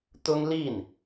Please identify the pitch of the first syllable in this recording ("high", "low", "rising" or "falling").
high